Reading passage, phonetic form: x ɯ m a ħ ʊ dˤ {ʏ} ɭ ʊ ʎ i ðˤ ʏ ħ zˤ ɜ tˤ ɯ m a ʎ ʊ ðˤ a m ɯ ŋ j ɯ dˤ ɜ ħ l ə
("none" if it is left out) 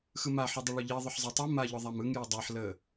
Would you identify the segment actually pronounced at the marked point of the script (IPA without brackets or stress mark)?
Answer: ʏ